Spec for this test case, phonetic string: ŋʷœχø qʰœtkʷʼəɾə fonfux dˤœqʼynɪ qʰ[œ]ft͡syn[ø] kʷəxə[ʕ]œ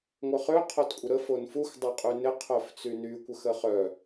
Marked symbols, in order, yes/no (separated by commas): yes, no, no